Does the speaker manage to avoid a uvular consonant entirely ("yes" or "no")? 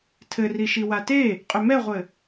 no